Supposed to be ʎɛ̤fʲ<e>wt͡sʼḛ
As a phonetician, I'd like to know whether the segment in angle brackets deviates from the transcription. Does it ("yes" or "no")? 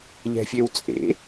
no